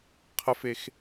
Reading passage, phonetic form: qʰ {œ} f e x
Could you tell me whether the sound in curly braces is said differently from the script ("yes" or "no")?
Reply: yes